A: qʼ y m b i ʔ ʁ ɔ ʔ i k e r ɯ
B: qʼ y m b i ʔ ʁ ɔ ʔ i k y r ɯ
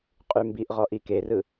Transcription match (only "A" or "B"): A